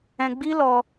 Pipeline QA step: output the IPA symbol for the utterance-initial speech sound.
ɛ̃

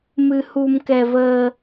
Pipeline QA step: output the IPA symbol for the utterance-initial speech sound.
m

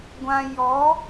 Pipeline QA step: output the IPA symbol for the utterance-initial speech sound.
ɡʷ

